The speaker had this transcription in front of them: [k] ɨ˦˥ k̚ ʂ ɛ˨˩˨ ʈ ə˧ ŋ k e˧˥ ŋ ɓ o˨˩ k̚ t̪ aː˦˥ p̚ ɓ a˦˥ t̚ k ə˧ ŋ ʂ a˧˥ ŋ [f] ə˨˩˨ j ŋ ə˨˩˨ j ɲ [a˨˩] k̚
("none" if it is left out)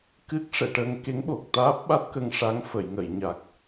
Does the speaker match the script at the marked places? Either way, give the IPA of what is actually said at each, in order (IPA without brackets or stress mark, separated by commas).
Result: k, f, a˨˩